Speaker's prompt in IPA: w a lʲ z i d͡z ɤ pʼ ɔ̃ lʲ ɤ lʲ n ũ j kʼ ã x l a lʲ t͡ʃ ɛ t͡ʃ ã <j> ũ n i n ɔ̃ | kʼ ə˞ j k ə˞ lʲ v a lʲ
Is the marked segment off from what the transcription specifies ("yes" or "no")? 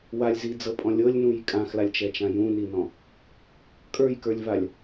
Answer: no